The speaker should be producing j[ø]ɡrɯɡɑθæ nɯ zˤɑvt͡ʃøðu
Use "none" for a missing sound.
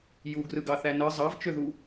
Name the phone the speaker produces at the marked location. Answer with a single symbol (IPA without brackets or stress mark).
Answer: u